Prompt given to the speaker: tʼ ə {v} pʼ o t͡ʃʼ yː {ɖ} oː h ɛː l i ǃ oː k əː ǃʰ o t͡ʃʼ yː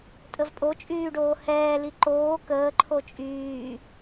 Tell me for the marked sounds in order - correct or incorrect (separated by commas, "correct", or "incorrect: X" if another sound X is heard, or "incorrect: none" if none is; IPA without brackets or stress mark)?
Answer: correct, correct